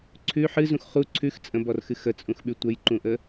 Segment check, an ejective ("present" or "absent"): present